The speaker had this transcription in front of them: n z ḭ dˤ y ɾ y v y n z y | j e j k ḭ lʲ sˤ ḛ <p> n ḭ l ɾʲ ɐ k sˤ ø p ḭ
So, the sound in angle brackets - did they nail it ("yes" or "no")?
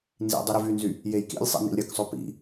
no